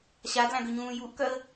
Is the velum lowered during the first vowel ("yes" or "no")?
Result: no